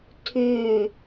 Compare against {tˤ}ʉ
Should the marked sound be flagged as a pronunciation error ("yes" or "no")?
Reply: yes